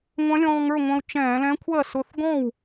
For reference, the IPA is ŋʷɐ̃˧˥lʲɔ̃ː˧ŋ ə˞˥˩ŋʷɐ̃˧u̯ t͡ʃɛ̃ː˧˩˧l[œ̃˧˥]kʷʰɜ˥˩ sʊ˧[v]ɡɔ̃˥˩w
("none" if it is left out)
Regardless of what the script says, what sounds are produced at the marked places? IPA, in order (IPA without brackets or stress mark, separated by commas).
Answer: ɛ̃˧˥, θ